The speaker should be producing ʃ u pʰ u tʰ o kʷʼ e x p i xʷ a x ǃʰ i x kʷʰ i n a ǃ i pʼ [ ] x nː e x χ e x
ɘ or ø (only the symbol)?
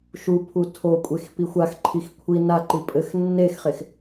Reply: ɘ